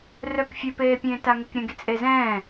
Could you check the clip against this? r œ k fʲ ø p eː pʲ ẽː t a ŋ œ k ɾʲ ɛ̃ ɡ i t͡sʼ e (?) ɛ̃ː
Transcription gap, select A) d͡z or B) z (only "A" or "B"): B